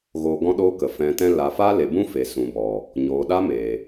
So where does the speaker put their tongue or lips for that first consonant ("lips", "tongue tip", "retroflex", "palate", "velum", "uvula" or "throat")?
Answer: velum